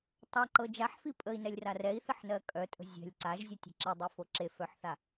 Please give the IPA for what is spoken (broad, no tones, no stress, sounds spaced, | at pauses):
tˤ a ǃ ɤ d͡ʒ a ħ f i pʼ ə i̯ n ɛ lʲ r a r ɛ i̯ θ ə ħ n ɜ kʼ œ tʼ ə̤ zʲ ɛ̤ lʲ ǀ a ʒ zʲ ə tʲ ɛ̤ ǁ e dˤ e f o ǁ e f œ ħ θ a